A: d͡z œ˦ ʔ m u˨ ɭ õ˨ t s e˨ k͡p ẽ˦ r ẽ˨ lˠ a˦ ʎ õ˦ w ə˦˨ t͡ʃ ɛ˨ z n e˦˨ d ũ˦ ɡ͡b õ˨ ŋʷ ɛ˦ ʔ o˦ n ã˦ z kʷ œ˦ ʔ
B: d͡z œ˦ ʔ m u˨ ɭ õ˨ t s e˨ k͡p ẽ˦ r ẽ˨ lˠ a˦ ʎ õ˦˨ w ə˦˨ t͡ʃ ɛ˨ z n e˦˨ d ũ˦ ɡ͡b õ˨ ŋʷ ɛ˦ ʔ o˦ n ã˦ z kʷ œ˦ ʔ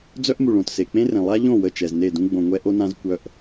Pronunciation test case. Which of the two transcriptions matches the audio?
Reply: B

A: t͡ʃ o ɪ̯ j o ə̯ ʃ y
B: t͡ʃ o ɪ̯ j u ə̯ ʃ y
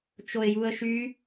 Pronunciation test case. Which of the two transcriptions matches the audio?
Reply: B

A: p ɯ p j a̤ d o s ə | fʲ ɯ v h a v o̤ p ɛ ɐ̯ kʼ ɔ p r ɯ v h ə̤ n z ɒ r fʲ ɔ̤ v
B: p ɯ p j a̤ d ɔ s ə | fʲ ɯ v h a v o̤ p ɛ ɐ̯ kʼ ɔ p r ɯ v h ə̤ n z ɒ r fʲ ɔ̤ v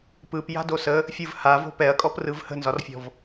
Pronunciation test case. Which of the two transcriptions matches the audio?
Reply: A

